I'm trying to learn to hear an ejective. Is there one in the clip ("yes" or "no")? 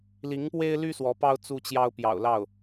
no